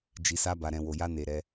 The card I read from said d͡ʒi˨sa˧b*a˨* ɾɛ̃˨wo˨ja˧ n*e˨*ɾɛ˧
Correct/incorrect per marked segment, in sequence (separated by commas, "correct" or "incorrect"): correct, correct